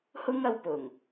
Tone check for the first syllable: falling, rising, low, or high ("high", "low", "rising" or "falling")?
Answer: high